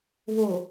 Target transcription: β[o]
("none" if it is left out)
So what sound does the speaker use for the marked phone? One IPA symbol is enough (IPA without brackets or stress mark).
o